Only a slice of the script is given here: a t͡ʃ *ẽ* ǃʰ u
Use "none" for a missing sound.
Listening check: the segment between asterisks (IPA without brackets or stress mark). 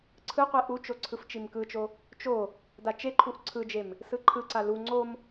e